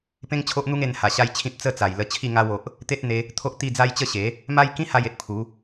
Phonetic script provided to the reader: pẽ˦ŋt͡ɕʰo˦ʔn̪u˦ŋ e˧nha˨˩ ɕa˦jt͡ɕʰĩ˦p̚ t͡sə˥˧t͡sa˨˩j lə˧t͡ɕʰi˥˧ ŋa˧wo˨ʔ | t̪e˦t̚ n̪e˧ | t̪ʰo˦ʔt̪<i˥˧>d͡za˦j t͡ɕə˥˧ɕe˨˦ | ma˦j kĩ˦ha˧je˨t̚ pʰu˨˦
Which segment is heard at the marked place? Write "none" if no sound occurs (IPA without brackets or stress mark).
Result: i˥˧